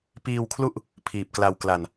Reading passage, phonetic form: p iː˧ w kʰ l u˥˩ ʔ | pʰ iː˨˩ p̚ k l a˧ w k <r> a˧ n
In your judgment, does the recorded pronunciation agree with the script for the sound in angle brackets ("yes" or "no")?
no